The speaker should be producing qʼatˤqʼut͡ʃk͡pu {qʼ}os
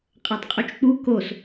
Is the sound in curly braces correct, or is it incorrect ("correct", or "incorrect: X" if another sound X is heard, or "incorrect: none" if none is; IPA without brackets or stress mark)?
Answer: incorrect: k